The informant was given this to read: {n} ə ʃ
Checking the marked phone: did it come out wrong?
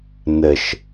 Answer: no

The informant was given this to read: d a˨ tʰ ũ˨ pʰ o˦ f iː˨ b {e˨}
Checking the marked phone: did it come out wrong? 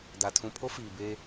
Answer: yes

